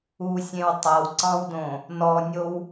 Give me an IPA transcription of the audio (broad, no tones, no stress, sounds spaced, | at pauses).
u sʲ ẽ w tˤ a w ǀ ɑ̃ w d õ | n ɔ nʲ o w